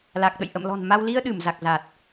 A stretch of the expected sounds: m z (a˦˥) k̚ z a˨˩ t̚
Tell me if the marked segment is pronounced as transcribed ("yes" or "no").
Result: no